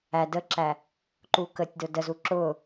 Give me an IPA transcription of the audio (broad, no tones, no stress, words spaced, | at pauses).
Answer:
æ dəǁæ | ǃukətʲdʊ dəzu ǁʊ